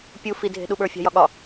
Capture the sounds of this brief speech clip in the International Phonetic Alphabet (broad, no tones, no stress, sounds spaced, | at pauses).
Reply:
pʲ u f i dʱ e̤ ɗ u ɓ ə˞ fʲ a̤ j ɒ ɠ ɒ